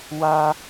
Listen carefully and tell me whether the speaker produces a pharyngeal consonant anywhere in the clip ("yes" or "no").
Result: no